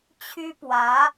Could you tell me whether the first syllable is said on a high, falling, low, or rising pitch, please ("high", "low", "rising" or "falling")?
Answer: high